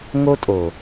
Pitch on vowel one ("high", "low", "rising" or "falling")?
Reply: high